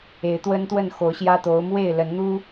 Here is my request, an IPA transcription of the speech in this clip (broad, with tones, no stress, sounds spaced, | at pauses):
e˨˦ ɪ̯ t̪ w ə˦ n t̪ w ə˥˨ n x o˨˦ ʊ̯ ɕ j ä˦ t̪ o˨˦ ʊ̯ m w e˥˨ ɪ̯ l ə˨˦ n n̪ u˦